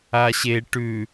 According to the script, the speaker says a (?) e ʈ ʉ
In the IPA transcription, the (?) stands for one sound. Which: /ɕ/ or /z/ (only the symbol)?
ɕ